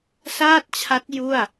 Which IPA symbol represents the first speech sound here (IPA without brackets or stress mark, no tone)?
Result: s